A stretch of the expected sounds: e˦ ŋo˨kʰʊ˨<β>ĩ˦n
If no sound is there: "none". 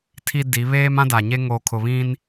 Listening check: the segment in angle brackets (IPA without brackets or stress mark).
β